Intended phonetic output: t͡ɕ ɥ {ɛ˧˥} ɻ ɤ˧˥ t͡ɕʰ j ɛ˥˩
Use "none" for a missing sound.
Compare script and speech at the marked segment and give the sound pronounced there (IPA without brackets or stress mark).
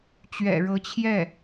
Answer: ɛ̰˨˩